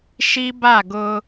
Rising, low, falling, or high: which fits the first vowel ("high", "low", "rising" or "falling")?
high